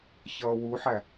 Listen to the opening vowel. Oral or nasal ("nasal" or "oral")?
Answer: oral